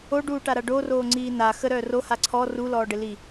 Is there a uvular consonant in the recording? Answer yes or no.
no